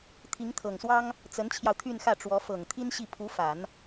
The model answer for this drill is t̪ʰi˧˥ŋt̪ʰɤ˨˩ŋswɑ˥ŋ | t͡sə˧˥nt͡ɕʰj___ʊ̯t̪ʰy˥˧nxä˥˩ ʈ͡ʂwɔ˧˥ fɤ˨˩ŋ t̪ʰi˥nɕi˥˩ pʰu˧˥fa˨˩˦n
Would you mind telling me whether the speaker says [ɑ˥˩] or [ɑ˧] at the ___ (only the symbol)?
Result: ɑ˧